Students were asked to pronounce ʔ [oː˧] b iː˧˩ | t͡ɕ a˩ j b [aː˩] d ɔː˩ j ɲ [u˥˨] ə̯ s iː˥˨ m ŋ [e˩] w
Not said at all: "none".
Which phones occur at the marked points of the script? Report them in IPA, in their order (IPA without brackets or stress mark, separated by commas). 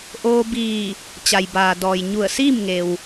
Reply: oː˧, aː˩, u˧˩, e˩